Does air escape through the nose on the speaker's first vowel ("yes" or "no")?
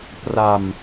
no